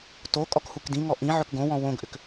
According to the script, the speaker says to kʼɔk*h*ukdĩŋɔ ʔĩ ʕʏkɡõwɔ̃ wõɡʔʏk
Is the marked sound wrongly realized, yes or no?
no